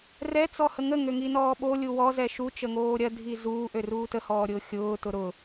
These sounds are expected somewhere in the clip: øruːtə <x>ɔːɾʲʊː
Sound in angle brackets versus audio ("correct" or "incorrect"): incorrect